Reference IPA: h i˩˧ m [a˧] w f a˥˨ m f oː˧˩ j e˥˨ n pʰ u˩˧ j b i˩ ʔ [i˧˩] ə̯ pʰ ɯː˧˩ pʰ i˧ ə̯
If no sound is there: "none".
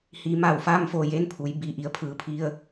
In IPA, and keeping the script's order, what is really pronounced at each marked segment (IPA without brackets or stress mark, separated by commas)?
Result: a˩, i˩